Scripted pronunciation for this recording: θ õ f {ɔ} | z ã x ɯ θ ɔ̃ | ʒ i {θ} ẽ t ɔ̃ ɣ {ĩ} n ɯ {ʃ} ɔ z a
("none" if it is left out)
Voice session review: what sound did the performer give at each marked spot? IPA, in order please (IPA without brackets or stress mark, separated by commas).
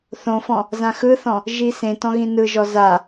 ɔ̃, s, ĩ, ʒ